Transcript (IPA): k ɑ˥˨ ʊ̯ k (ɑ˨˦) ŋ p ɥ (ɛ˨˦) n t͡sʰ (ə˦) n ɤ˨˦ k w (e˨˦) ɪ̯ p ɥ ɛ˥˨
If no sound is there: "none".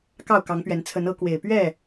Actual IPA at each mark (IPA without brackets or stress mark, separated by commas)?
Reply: ɑ˨˦, ɛ˨˦, ə˨˦, e˨˩